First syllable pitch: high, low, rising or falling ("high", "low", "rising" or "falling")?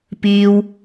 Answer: low